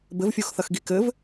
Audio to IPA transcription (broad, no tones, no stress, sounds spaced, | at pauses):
b ɘ v fʲ o x θ ɐ x ɡ i k ɘ v